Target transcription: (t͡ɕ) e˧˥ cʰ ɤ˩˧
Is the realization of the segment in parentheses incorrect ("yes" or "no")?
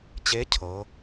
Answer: no